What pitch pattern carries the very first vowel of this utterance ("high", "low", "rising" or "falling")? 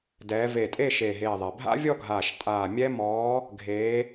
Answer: rising